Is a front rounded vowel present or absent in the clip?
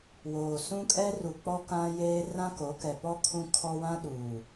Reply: absent